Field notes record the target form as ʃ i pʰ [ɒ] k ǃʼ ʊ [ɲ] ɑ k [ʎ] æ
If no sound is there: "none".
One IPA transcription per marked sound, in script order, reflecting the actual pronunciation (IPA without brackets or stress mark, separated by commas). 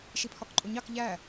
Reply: ɒ, ɲ, ʎ